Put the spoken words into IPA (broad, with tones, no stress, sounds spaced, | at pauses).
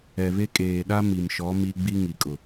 ɛ˨ β e˦ kʼ eː˨ ɗ a˦ m i˨ m ʃ ɔ˨˦ m i˦ ɡ͡b i˦ ŋ i˨ kʼ ʊ˨